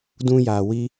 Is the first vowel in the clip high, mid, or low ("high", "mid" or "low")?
high